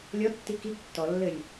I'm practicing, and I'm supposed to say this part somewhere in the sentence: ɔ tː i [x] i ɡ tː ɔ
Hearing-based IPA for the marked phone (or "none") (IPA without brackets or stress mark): k